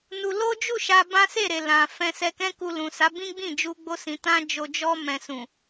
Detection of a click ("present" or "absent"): absent